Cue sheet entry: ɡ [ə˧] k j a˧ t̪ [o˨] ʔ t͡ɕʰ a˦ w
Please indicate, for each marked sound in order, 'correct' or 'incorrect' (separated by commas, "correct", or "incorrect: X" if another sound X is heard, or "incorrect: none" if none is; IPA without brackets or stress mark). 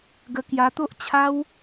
correct, incorrect: o˦